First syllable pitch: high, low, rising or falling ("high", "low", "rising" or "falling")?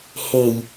low